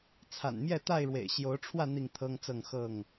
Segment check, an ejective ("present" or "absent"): absent